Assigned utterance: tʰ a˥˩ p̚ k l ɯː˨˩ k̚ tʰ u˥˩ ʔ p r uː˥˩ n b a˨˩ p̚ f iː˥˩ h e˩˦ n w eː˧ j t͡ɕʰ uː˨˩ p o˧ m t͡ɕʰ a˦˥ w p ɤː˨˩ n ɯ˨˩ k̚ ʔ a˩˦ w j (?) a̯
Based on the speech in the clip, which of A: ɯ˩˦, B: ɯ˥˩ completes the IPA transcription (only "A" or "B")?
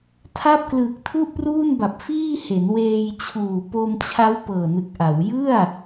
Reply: B